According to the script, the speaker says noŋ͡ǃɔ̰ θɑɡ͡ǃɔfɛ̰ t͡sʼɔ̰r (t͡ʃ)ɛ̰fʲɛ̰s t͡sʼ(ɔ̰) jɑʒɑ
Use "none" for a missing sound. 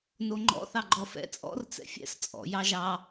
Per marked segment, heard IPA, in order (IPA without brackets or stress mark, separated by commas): t͡s, ɔ̰